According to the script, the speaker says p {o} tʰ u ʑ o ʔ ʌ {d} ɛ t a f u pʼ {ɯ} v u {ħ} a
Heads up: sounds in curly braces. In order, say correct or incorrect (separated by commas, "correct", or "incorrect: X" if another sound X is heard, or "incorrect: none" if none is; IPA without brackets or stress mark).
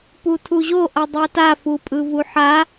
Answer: incorrect: u, incorrect: dˤ, correct, correct